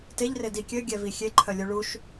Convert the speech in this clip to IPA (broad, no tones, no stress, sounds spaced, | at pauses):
t e ʎ r e d i kʲ ø ɡʲ ɛ v i xʲ e ǃʰ œ lʲ u ɭ u ʃ